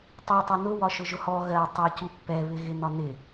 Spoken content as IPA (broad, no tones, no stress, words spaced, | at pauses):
tˤi tˤʌnʊ wɒʃʊʒʊhɔ ɣɜ tˤʌ cupːɛ βɪɣɪnɒnɪ